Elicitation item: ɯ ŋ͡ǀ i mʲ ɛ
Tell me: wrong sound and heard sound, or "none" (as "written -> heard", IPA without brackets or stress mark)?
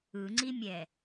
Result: none